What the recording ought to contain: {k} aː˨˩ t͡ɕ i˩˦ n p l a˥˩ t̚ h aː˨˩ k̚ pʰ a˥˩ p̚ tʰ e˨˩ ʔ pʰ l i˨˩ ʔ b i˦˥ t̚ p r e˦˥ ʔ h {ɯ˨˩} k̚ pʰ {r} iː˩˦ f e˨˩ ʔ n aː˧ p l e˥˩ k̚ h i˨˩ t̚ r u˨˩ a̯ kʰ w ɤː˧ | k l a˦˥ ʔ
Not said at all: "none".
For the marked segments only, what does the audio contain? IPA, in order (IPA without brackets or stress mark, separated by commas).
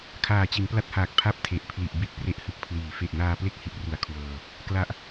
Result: kʰ, ɯ˨˩, l